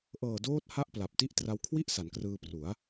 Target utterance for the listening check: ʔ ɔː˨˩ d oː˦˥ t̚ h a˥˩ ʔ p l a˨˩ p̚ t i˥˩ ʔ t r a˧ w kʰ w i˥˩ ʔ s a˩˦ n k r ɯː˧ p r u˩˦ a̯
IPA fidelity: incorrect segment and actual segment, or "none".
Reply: ɔː˨˩ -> ɤː˨˩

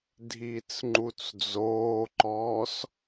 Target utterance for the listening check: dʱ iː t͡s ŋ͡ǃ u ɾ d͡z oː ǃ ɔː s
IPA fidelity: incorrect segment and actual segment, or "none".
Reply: ɾ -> t͡s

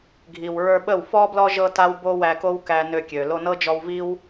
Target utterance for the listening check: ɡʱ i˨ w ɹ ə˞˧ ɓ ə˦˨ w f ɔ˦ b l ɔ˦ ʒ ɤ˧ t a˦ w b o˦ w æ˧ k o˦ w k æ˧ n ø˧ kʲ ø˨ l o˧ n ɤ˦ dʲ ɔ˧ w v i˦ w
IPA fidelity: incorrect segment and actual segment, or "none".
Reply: dʲ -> d͡ʒ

